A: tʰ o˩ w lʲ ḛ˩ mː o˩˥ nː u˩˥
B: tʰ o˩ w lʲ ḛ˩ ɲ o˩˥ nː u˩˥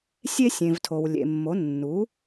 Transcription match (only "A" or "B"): A